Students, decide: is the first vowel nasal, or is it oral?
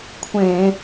nasal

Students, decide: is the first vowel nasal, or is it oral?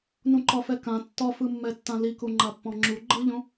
nasal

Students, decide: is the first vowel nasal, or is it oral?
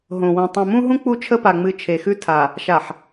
nasal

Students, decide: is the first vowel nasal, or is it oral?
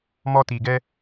oral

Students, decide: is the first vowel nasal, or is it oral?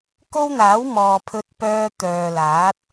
oral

